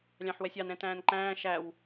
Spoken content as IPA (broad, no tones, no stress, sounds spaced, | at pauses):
lʲ ɑ̃ ħ w ɛ sʲ ɑ n ɛ̃ t æ̃ː n ǃ æ̃ː ʃ æ w